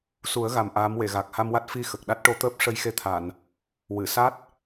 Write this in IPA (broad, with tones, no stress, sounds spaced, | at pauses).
s u˨˩˦ ə̯ ɣ a˨˩ m ʔ aː˧˥ m w e˨˩˨ ɣ aː˨˩ k̚ h a˧ m w a˦˥ t̚ f i˧ x ə˨˩ k̚ ɗ a˦˥ t̚ ʈ o˧˥ t̪ əː˦˥ p̚ ʂ ə˧ j x e˧ t̪ʰ a˨˩˨ n | w ɨ˨˩˨ s a˦˥ t̚